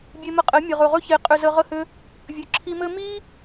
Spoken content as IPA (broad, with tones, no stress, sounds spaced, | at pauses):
bʲ e˧ m ə˧ qʼ ɘ˨˦ mʲ ə˨ ʁ ɵ˨ ʁ ɵ˦ ç e˨˦ qʼ ʏ˨ z ə˨ ʁ ə˧ h ʏ˧ | vʲ ɵ˨ ǁʰ i˧ m ɘ˦ m i˦